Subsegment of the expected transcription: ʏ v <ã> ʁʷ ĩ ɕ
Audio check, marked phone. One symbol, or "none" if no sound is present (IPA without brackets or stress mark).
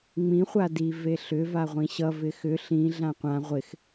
a